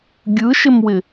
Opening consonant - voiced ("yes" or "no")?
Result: yes